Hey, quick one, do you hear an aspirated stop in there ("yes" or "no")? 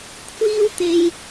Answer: yes